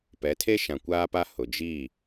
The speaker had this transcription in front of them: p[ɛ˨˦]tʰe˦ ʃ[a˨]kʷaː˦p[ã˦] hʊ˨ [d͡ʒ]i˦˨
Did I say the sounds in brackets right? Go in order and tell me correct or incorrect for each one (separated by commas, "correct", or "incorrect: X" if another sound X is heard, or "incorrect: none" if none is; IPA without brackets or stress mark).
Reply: correct, incorrect: ã˨, incorrect: a˦, correct